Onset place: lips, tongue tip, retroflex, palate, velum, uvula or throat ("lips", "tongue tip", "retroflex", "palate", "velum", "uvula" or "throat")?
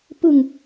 lips